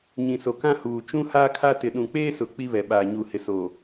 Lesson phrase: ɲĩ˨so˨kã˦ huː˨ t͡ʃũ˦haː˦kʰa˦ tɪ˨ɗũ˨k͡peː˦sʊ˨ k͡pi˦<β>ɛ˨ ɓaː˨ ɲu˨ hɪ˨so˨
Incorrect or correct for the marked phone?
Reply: correct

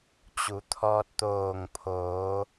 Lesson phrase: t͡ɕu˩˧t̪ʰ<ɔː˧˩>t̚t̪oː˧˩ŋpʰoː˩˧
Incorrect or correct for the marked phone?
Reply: incorrect: ɔː˧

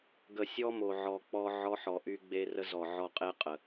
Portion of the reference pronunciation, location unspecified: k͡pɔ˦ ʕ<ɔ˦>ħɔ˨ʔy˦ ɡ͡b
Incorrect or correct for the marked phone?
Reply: correct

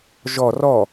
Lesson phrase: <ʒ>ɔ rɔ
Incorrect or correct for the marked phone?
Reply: correct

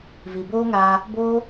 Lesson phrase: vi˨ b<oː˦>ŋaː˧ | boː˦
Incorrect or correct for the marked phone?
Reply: correct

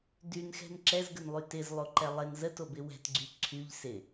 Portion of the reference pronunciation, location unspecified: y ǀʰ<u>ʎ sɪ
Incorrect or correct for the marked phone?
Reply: incorrect: y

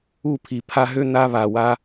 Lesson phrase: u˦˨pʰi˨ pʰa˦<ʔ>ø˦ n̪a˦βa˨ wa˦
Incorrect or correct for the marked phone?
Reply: incorrect: ɦ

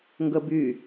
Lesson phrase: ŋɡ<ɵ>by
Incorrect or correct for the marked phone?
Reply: incorrect: ə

